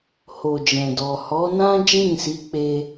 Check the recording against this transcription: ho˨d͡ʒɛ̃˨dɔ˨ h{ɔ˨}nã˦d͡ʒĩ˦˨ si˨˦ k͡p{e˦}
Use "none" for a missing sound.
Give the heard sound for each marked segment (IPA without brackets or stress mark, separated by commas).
ɔ˨˦, e˧